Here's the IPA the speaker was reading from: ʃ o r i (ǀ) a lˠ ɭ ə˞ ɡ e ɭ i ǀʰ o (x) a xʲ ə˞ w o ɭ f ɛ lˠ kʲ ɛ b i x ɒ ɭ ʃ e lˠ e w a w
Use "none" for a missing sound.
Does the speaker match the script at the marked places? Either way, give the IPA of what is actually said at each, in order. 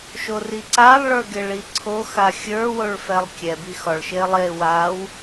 ǀ, x

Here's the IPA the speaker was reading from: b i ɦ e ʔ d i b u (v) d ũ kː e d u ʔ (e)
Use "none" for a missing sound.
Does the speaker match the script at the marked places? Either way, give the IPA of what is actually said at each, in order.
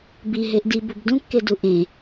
b, ẽ

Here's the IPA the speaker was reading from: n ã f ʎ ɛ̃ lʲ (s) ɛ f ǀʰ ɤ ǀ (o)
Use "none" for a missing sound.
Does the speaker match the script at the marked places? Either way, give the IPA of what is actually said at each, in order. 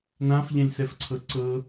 s, ɤ

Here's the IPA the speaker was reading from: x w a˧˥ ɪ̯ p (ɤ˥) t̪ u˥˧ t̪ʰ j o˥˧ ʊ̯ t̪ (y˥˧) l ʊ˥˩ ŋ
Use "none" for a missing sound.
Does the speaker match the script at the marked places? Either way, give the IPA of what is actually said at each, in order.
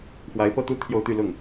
ɤ˥, y˥˧

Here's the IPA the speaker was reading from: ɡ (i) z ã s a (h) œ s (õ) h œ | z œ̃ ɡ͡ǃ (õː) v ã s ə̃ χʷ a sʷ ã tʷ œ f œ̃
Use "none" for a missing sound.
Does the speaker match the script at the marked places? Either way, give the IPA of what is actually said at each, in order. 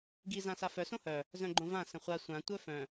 i, f, õ, õ

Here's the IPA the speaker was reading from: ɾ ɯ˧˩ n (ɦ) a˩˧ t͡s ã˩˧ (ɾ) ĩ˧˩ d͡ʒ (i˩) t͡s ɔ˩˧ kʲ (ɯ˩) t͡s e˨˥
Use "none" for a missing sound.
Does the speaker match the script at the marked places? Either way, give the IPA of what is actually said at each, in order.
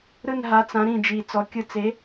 ɦ, ɾ, i˩, ɯ˧˩

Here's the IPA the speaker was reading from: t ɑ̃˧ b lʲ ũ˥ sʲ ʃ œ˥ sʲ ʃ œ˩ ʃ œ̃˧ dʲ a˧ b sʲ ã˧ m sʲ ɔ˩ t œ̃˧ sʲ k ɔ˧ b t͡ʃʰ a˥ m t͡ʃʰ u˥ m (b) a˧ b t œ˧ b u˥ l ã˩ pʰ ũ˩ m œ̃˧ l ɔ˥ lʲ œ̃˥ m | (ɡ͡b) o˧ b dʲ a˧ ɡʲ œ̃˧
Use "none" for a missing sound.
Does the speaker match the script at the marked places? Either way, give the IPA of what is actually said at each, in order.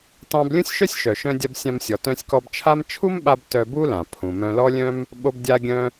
ɓ, ɓ

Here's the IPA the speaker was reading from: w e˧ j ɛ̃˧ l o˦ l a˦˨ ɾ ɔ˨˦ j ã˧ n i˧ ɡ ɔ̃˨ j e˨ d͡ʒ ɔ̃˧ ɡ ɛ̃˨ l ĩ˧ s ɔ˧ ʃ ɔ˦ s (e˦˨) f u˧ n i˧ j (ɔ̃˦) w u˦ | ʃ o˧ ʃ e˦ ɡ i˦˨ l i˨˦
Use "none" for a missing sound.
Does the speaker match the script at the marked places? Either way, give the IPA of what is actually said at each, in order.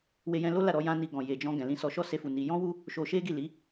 e˦, ɔ̃˦

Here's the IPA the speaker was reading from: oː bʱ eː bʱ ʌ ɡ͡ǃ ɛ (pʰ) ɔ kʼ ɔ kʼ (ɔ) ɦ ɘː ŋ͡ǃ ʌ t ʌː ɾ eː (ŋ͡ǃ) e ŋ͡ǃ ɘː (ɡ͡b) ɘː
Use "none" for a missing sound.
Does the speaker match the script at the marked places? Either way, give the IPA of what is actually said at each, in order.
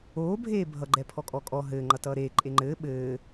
pʰ, ɔ, ǃʼ, ɓ

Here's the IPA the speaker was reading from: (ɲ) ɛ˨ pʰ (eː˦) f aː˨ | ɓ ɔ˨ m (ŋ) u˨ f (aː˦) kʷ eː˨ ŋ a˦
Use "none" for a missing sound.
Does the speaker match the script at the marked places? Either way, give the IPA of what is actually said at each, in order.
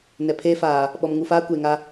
n, eː˦, ŋ, aː˦

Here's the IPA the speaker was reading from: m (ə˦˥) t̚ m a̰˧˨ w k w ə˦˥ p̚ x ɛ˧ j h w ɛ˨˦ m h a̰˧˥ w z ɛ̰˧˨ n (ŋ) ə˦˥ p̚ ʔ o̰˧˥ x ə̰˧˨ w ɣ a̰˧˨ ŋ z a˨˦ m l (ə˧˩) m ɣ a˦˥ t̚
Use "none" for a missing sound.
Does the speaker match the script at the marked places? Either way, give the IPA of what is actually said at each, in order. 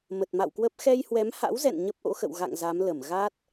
ə˨˩, ɲ, ə˧˩

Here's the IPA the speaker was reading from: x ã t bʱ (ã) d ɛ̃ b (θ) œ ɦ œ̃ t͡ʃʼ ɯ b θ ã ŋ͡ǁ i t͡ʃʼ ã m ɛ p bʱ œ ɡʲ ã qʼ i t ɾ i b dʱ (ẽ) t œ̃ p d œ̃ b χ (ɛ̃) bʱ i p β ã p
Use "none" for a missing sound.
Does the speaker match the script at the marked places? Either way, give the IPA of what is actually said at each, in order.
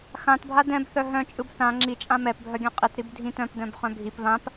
a, θ, ĩ, œ̃

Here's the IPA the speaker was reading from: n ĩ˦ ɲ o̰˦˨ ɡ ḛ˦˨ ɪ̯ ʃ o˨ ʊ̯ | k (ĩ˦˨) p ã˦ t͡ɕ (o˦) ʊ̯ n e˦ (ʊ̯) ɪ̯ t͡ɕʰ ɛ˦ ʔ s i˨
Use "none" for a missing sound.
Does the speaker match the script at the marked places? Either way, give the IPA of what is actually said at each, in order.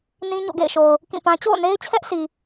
ĩ˦˨, o̰˦˨, none

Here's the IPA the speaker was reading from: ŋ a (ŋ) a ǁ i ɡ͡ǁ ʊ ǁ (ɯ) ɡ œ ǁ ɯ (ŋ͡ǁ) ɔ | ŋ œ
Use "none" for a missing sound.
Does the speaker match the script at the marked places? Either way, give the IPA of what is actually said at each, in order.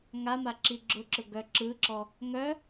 m, ʊ, ǁ

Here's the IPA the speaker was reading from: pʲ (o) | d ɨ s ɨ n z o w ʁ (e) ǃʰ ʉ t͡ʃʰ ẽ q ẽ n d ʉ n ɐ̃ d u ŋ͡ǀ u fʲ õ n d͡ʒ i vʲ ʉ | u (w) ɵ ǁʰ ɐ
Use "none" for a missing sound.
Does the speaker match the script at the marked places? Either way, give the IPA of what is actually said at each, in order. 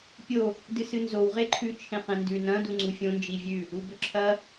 o, e, b

